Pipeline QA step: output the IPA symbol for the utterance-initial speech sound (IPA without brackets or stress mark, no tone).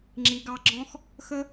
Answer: ŋ͡ǁ